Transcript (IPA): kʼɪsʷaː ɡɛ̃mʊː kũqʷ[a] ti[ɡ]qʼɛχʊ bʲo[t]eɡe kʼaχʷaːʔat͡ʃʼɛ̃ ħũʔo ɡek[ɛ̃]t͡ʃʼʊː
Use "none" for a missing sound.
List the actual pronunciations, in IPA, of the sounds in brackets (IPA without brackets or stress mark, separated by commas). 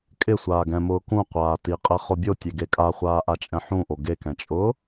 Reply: aː, none, tʲ, ɛ̃